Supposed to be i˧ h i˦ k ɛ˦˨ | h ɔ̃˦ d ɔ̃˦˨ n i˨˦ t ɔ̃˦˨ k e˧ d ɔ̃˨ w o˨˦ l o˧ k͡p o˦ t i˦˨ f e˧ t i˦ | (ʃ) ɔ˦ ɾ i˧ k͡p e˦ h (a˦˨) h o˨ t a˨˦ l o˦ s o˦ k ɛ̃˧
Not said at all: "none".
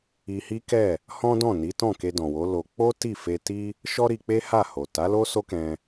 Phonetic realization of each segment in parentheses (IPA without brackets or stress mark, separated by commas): ʃ, a˦˨